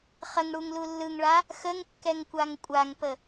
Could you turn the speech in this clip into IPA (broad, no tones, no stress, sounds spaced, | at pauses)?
χ ə ŋ ɽ u ŋ l u lː ɯ ŋ ɭ a | x ə ŋ kː ɛ ŋ kʷ a ŋ kʷʼ a ŋ p ə